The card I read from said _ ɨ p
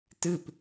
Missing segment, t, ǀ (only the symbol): t